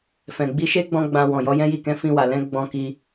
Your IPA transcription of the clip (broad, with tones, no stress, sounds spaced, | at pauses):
f ɛ̃˨ ɡ͡b i˧ ʃ e˦ ɡ͡b ɔ̃˧ ɡ͡b ã˧ w ɔ̃˨ j ɔ˨˦ j ɛ̃˦ j i˦˨ k ɛ̃˨˦ f ĩ˧ w a˨ l ɛ̃˨˦ ɡ͡b ɔ̃˧ k i˧